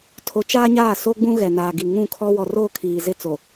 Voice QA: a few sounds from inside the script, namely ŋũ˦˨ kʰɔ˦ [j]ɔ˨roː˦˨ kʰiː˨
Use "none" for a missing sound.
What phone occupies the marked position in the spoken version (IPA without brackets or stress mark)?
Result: w